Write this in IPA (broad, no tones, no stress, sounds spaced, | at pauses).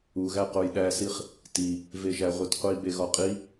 u ɣ æ q o j ɗ æ s i χ | t i | v e ʒ æ ʁʷ e t qʷ i b e ɣ ɒ qʼ i